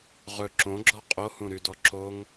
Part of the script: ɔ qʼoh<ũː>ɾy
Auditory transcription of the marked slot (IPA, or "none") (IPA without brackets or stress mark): ũ